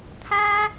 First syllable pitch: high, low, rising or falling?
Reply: high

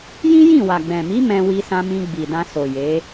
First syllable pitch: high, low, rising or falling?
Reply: high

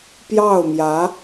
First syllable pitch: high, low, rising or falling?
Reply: falling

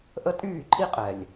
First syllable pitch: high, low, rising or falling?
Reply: high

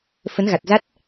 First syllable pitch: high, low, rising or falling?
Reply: rising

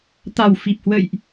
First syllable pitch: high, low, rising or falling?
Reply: low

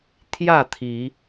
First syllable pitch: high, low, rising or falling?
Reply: falling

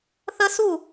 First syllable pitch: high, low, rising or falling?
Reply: high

